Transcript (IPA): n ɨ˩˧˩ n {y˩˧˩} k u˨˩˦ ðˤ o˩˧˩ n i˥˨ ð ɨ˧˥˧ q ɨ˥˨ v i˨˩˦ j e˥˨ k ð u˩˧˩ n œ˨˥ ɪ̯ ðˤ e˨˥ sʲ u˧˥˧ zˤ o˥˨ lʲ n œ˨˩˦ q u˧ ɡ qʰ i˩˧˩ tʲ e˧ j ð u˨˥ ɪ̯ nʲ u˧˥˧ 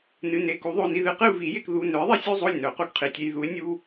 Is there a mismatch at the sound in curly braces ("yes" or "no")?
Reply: yes